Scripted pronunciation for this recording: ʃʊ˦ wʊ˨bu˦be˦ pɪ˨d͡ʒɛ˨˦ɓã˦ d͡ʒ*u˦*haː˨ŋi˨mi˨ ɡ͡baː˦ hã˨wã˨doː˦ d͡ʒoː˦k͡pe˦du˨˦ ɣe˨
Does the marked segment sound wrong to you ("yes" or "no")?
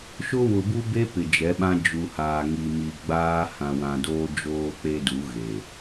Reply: yes